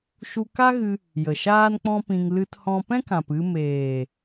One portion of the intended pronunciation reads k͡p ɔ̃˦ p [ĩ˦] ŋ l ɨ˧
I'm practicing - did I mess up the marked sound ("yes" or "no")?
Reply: yes